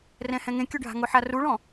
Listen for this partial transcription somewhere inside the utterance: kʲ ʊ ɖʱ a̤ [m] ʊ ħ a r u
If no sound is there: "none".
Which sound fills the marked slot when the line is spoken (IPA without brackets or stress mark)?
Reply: ŋ